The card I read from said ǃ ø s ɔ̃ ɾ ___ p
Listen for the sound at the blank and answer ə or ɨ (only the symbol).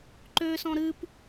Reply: ɨ